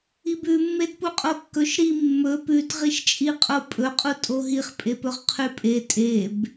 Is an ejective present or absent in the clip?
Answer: present